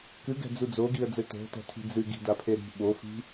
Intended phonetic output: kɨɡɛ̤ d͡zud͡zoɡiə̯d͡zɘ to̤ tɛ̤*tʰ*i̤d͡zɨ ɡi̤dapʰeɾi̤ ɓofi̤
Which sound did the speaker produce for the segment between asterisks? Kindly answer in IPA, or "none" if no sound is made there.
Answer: tʰ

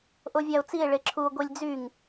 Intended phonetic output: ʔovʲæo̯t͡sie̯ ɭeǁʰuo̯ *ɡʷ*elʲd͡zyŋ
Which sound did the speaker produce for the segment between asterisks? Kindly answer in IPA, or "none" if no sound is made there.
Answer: ɡʷ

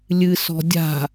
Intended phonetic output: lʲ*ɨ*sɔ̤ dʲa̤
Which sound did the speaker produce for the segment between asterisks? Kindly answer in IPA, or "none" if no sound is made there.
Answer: ɨ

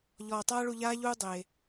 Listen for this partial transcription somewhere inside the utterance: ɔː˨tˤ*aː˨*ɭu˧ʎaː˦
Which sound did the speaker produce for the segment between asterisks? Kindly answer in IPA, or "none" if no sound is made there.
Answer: aː˦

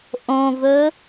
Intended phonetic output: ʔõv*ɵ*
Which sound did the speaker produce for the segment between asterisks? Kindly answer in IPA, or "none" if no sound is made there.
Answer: ɵ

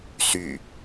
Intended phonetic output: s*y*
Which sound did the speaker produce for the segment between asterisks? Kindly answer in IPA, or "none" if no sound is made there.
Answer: y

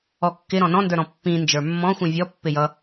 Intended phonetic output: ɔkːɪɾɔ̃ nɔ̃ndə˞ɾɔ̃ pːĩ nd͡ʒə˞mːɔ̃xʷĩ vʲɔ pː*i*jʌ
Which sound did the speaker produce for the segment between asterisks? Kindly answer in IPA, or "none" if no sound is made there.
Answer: ɪ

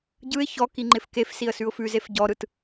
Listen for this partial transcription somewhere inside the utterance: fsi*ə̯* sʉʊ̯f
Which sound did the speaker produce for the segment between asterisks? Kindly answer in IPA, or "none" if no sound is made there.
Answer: ə̯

